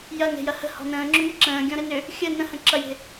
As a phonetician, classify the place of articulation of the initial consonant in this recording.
palatal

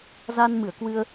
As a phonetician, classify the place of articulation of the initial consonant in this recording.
alveolar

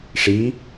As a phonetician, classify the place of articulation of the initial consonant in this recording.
retroflex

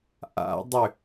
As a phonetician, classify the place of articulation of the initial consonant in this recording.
glottal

